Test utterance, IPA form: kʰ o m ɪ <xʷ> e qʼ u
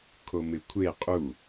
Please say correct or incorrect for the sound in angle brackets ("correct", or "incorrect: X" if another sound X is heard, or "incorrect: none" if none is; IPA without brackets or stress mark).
incorrect: kʷʰ